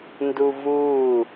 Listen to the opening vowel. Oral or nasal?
oral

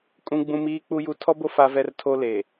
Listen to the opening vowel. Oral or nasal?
nasal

